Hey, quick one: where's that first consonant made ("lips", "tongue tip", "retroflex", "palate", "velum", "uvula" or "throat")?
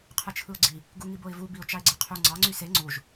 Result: uvula